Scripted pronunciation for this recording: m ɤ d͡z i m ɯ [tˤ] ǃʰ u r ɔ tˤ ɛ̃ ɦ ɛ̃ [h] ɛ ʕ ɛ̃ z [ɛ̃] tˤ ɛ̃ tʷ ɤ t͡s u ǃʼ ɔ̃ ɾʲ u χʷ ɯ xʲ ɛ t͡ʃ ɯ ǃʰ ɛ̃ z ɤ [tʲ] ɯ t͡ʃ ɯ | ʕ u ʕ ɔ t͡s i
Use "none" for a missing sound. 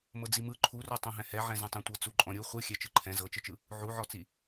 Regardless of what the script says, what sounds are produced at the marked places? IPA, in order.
none, h, ɛ̃, t͡ʃ

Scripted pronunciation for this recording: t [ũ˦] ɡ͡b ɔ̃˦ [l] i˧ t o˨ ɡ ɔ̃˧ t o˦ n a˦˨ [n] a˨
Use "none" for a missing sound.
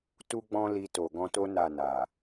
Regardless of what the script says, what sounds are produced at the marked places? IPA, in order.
u˦, l, n

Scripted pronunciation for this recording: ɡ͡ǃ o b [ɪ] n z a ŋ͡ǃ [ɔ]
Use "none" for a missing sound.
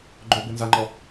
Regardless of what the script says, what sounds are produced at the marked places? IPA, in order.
ɪ, ɔ

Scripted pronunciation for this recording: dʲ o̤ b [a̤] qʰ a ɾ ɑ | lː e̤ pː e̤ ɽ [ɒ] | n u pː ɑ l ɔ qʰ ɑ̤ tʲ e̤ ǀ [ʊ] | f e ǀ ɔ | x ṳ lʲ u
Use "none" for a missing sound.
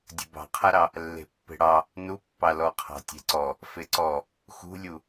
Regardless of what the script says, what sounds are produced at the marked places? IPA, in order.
ɑ̤, ɑ, ɔ

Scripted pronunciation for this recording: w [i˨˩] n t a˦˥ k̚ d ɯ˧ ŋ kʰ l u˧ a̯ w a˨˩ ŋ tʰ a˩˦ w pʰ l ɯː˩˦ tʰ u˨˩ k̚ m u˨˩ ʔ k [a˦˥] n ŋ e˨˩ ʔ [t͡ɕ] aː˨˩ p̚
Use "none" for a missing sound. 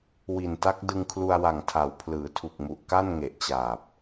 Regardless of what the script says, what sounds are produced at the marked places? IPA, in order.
i˨˩, a˥˩, t͡ɕ

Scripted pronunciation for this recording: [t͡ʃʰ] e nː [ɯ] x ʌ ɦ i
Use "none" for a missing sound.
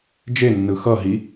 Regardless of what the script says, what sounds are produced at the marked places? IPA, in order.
d͡ʒ, ɯ

